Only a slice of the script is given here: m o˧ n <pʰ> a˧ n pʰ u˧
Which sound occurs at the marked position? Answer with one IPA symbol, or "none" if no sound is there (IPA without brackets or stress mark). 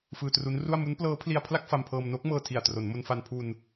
f